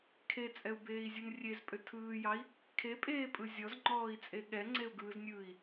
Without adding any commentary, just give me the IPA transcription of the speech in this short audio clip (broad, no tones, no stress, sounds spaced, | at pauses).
kʰ e t͡sʼ ɛ u̯ b eː i̯ zʲ ɯ n rʲ e z pʼ ʏ tʰ ɯː j ɑ i̯ | kʰ e pʼ eː pʼ ɯ zʲ ɔ z ŋ͡ǃ ɔː i̯ t͡sʼ e ɠ ɛ ŋ͡ǀ e u̯ ɡ ɯː z nʲ ɯː i̯